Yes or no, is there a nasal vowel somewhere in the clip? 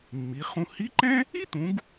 yes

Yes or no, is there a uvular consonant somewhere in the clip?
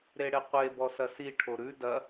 yes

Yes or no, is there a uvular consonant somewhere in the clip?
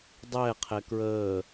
yes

